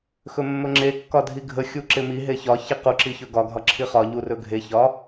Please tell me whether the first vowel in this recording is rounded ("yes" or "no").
yes